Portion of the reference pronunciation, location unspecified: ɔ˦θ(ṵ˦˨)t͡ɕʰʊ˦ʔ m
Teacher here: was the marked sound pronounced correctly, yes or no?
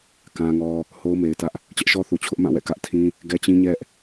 no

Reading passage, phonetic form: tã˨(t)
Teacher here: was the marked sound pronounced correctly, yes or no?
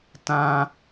no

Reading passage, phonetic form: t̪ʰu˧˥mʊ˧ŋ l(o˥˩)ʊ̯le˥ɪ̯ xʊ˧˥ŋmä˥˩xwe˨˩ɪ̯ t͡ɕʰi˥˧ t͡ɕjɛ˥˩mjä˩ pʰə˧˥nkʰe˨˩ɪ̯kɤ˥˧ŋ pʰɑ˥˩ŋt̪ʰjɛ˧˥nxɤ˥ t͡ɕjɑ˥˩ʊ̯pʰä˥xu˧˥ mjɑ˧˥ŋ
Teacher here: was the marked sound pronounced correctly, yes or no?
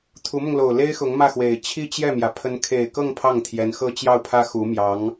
no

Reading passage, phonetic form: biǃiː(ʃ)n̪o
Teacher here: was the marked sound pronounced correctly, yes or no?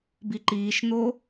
yes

